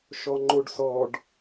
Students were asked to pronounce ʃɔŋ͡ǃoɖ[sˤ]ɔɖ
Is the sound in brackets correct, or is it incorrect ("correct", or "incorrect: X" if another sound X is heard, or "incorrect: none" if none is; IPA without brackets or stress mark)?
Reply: incorrect: s